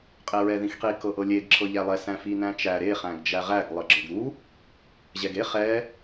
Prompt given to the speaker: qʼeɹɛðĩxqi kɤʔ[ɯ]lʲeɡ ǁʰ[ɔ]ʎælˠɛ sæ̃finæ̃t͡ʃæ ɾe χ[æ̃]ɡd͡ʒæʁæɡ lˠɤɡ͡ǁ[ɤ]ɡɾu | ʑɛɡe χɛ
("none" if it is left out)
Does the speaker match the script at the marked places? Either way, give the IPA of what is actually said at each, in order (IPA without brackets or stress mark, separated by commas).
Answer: ɤ, ɤ, æ̃, ɤ